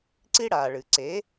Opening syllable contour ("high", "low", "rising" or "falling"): high